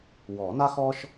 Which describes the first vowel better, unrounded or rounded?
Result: rounded